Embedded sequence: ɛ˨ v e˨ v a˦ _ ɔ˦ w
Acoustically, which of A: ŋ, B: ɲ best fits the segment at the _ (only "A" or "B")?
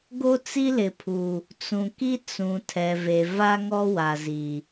A